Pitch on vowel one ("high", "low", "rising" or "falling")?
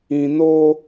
low